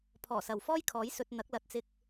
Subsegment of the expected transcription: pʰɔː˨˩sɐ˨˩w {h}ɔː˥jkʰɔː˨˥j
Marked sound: incorrect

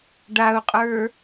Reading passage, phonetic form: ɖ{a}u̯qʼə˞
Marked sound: correct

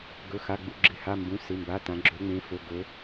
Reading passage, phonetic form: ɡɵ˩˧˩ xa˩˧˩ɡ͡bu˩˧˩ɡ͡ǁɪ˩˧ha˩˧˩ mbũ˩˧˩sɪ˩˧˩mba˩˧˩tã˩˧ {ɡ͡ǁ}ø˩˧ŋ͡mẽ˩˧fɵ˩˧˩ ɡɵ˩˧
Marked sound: correct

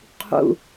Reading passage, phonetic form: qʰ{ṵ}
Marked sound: correct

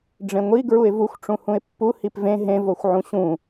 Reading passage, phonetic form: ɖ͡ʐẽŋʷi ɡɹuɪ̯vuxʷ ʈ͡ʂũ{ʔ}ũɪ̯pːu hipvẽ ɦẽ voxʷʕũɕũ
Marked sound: incorrect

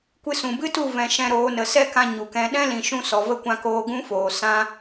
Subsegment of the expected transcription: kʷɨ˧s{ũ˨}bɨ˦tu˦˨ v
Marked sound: correct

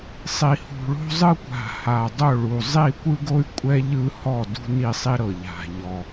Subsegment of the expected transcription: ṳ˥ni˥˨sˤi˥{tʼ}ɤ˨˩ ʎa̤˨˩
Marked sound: incorrect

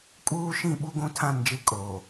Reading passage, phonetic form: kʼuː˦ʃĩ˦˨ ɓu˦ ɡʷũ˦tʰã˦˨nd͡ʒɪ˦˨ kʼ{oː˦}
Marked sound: incorrect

